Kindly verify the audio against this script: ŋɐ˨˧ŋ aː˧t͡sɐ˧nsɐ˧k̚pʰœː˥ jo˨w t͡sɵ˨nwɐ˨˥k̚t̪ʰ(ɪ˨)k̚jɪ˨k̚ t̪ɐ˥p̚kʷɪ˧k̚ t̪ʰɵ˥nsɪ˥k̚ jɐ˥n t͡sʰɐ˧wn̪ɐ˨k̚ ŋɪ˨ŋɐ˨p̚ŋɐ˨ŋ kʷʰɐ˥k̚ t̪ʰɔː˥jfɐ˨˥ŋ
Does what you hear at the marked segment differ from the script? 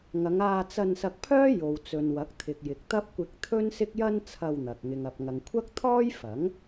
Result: no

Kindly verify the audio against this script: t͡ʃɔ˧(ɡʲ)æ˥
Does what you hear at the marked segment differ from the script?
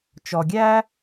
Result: no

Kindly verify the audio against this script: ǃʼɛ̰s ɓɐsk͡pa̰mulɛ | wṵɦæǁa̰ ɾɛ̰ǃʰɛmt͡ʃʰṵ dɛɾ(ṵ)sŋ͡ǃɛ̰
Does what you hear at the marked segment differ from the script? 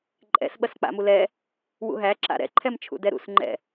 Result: no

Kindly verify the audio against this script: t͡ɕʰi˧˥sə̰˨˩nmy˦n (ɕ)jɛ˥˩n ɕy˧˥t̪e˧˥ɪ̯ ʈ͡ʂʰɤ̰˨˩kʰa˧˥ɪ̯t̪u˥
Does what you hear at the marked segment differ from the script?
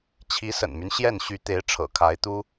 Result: no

